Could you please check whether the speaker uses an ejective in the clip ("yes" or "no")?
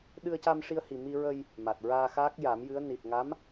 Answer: no